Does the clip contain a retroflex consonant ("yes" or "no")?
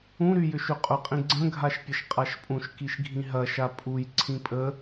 no